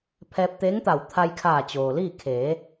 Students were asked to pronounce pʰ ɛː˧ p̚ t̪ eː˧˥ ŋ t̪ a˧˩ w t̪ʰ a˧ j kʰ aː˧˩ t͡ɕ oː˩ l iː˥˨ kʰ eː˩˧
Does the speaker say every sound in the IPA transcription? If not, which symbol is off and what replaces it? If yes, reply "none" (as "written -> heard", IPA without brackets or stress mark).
none